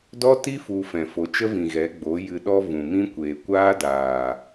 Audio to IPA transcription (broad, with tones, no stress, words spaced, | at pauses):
dɔ˦ti˦ fu˧ fɛ̃˨fo˨˦t͡ʃə˦vĩ˨ ɣɛ˨˦ɡ͡bo˨˦ jɨ˨ɗɔ˧ vũ˨mĩ˦kʷeː˨ kʷaː˦daː˨